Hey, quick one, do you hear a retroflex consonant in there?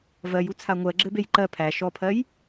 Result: no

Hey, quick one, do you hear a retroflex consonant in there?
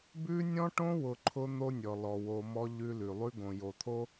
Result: yes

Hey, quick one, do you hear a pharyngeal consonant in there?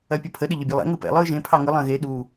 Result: no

